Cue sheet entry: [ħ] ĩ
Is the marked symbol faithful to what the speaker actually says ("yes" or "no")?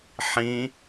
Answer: yes